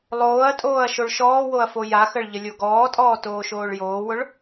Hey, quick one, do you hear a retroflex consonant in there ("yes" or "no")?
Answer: yes